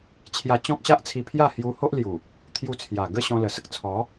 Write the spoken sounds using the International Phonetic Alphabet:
t͡ɕʰ j a˧ t͡ɕ ɔ̃˦ k̚ ɕ a˦ ʔ t͡sʰ i˧ pʰ j a˥˧ h j u˧ h o˦ ʔ l j u˨˩ | t̪ʰ j u˧ t͡sʰ j a˨˩ ɡ ə˥˧ ɕ ɔ̃˧ l ə˨˩ s ə˦ k̚ t͡sʰ ɔ˨˦

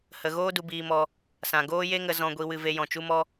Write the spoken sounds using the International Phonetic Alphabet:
h ə˧ ɣ oː˦ d u˧ b iː˧ m ɔ˧ | s ã˨ ɡ oː˦ j e˦ ŋ ə˧ z ɔ̃˧ ɡʷ i˧ w ɨ˧ v e˧ j ɔ̃˨ t͡ʃ u˦ m ɔ˦

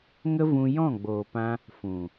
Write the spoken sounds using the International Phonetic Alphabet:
ŋ ə˦ v ũ˧ j ɔ̃˦˨ ɡ͡b oː˨ p ã˧ | f ũ˨

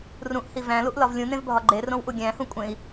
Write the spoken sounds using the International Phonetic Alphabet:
r ũ ʔ h i v æ̃ l u ʔ l ɒ v lʲ ũ n ẽ v bʱ ɒ ɡ͡ǃ e r õ w ʔ u ɡʲ æ̃ h ũ kʷʼ ẽ i̯

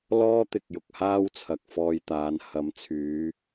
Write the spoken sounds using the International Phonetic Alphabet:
l ɔː˥ t̪ ɪ˨ k̚ j ʊ˨ k̚ h aː˥ w t͡sʰ ɐ˨ k̚ f ɔː˧ j t̪ aː˨˧ n h ɐ˨˥ m t͡sʰ yː˨˧

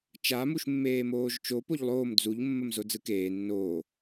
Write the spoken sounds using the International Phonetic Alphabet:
t͡ʃ a m u ʃ mː eː m oː ʒ t͡ʃ o p o ʎ lˠ oː m d͡z u ʎ mː ə m z o d͡z ɯ k eː nː oː

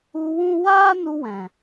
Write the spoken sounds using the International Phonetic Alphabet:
u˧ w ũ˦ w aː˦ n u˧ w ɛ̃˨

